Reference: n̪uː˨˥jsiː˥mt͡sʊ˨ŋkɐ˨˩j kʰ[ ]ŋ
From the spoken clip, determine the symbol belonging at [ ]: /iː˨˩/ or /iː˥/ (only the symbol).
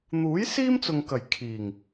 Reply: iː˨˩